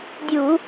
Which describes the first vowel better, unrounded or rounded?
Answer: rounded